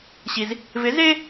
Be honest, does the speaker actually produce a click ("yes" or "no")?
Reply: no